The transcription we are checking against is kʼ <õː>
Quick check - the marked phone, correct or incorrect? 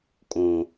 incorrect